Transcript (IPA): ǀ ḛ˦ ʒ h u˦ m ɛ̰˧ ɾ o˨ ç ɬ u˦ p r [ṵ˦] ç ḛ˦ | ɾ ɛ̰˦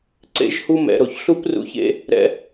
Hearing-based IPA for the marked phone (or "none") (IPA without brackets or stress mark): ṵ˦